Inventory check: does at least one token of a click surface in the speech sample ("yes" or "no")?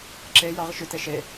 yes